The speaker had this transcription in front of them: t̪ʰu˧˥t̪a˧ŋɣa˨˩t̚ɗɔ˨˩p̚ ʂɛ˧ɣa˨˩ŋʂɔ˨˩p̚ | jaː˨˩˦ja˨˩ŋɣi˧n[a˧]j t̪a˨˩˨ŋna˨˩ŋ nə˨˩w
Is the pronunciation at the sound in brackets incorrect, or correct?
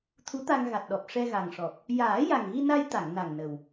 correct